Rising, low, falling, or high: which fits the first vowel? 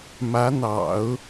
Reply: rising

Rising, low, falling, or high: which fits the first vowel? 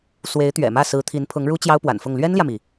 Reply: rising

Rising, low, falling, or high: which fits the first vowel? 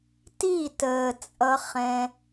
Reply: falling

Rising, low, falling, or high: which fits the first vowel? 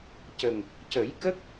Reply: low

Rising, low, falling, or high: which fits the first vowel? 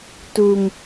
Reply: low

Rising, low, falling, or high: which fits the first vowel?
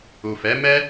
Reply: low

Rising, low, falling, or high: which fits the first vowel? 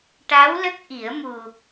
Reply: rising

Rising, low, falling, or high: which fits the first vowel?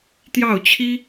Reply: falling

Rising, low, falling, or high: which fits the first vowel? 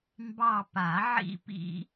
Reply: falling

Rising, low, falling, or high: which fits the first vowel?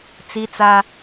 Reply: high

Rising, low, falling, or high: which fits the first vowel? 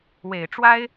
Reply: low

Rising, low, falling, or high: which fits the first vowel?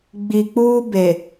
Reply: low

